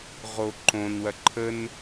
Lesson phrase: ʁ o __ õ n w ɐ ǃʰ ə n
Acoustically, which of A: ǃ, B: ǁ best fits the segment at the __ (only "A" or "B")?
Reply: A